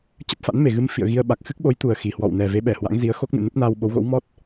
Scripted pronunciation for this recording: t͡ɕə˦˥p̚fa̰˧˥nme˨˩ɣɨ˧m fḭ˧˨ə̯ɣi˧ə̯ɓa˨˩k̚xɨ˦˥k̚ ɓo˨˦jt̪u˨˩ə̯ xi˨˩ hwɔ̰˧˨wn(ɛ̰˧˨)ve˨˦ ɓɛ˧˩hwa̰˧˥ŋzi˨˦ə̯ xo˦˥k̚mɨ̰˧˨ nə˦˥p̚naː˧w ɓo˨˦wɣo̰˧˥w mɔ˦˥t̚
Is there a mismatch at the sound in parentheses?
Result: yes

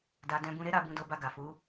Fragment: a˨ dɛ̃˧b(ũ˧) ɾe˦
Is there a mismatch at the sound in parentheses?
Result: no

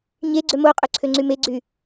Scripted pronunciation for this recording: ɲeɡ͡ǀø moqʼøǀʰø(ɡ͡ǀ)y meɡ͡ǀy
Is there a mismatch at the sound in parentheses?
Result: yes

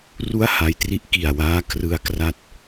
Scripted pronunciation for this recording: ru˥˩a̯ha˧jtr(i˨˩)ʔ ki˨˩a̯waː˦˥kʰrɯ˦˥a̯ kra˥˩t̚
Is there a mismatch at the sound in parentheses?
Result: yes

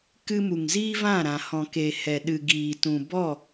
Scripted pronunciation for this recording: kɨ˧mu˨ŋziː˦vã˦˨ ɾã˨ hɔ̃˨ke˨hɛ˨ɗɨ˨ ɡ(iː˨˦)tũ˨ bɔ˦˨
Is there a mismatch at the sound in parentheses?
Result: yes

